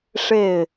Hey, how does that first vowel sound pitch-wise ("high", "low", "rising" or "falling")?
falling